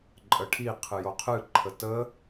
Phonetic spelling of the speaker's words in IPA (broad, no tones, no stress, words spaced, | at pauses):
ǃʼəʈʰi qʰɨjoqʰɨ ǃʰətə